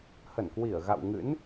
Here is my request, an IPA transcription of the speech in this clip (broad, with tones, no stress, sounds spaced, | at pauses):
h ə˧˩ n k w i˧˩ ə̯ ɣ a̰˧˨ w ŋ ɨ̰˧˥ n